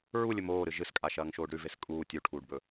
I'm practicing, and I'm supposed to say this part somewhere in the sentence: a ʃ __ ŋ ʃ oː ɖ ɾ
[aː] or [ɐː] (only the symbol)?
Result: ɐː